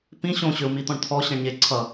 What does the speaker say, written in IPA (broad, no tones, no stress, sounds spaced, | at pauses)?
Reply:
p ĩ ɕ õ ɕ ʏ u̯ m i t̪ ɔ̃ ɳ t̪ʰ ɔ ɕ ẽ ɳ ɲ e ǀʰ ʌ